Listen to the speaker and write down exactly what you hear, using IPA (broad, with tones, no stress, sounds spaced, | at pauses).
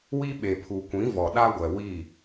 w i˦ ɓ e˨ pʰ u˨ kʷ ĩ˨˦ v ɔ˨ ɗ a˦ ɡʷ ɛ˨ w i˦˨